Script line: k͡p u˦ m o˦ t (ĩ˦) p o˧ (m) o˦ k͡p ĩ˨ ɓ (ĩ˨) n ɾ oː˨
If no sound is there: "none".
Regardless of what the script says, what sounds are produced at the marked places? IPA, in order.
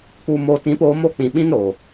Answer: ĩ˧, m, ĩ˦

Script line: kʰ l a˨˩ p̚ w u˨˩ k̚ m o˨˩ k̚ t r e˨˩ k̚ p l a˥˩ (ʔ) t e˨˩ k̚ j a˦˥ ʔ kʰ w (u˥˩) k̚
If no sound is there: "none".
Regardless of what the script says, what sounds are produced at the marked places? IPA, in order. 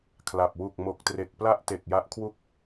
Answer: ʔ, u˥˩

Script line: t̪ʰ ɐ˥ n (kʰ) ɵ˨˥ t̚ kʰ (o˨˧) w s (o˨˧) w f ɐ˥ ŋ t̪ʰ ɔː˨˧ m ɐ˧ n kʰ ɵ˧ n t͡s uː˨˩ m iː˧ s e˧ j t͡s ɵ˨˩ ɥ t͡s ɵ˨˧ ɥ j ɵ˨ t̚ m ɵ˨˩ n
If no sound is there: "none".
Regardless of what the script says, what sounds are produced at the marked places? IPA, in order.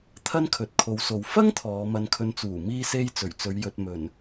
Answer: kʰ, o˨˧, o˨

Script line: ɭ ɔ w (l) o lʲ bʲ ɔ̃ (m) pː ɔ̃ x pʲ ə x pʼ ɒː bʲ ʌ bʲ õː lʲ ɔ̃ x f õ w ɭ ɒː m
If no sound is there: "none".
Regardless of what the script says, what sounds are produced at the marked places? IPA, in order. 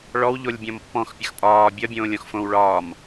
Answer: ʎ, m

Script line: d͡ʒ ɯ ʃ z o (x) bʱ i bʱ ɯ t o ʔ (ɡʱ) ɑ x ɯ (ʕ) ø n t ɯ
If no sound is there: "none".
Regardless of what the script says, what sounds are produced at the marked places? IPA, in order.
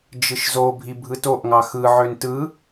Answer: none, ŋ, ʕ

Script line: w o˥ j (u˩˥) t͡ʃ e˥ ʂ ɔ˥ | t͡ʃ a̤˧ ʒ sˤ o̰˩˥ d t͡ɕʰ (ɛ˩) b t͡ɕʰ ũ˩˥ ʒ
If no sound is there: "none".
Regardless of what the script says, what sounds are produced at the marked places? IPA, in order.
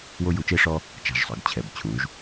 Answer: u˩˥, ɛ˩

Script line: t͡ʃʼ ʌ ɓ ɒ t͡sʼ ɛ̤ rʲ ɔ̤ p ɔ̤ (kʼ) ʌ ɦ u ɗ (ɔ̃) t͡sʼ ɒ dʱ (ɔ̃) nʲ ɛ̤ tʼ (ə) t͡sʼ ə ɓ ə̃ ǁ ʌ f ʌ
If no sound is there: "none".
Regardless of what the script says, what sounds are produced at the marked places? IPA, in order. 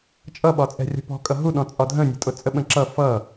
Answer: kʼ, ɔ̃, ə̃, ʊ

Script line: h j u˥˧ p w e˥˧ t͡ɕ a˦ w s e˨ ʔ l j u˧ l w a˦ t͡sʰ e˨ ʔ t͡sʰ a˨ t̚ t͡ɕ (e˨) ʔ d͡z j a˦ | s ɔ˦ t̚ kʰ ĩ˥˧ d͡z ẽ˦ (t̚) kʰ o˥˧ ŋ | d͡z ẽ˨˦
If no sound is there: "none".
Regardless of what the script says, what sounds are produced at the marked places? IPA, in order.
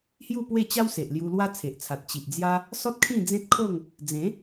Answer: i˨, t̚

